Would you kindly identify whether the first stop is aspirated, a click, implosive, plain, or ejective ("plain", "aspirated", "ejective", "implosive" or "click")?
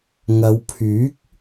aspirated